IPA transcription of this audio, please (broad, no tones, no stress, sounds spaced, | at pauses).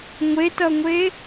ŋʷ e t ʌ ŋʷ e